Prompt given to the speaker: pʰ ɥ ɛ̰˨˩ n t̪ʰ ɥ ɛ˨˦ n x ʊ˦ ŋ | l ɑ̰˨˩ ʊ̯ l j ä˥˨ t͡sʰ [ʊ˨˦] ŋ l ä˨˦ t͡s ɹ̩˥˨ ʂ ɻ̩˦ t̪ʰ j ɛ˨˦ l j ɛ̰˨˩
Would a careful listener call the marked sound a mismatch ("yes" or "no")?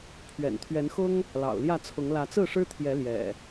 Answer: no